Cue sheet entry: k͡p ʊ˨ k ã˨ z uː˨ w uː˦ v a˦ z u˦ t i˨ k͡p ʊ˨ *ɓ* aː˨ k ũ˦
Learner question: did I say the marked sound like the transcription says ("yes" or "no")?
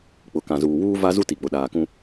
no